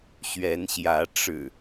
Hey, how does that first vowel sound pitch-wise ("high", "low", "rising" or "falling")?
rising